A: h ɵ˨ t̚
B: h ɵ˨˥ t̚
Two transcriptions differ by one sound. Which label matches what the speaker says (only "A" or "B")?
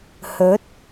B